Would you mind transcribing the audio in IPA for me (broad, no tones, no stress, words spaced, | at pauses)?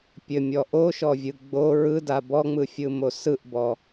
pʲɘmʲɔ ʔoʃɔvʲɯ ɡ͡bo ɹɯda bɔŋ͡mɯfʲɯmo sɯʔbɔ